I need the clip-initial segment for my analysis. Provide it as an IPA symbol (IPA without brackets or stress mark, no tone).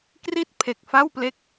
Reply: k